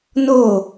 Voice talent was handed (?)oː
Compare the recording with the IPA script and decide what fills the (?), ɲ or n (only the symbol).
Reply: n